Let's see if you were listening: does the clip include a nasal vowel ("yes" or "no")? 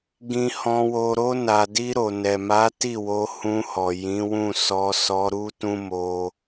yes